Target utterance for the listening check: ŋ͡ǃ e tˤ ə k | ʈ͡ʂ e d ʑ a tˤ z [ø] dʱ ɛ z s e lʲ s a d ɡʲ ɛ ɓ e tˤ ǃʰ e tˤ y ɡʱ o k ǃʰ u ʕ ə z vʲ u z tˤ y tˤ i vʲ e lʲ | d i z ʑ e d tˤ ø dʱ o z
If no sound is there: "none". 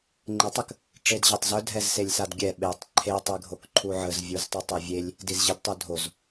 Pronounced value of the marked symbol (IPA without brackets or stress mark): œ